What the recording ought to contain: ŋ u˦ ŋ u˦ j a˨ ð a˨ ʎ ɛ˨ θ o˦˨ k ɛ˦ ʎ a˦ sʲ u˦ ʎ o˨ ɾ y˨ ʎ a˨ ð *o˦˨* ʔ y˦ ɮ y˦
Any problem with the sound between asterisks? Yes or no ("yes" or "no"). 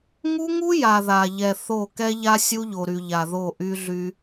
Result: no